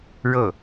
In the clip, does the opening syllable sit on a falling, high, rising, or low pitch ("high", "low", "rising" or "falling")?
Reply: falling